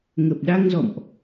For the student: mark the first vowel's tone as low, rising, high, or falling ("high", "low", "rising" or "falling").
low